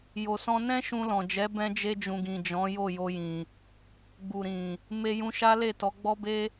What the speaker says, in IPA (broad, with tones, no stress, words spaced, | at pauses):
jo˨sɔ̃˧ nɛ̃˦ʃũ˧lɔ̃˨d͡ʒɛ˨˦ bɛ̃˧d͡ʒe˧d͡ʒũ˨ɡĩ˨ d͡ʒɔ̃˨˦jo˦˨jo˧jĩ˨ | ɡ͡bu˨ɾĩ˨ | me˧jũ˧ ʃa˦ le˦˨tɔ˨˦ɡ͡bɔ˦be˦